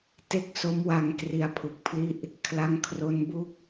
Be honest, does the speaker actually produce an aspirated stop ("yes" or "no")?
yes